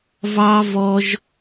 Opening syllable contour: high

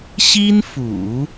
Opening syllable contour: high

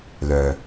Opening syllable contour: low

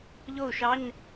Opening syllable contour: falling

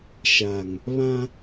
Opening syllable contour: low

